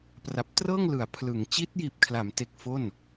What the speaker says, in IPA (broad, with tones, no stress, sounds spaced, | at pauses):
p r a˨˩ p̚ t r ɤː˥˩ ŋ l ɯ˩˦ a̯ pʰ l ɯ˩˦ ŋ t͡ɕ i˦˥ t̚ j iː˨˩ p̚ kʰ l a˩˦ m t e˨˩ k̚ f o˥˩ n